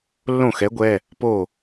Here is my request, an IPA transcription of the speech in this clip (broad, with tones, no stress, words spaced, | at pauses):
lːõ˥˩xɛ˨˥ɡʷɛ˩˧˩ | po˥˩